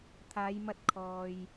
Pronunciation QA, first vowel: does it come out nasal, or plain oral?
oral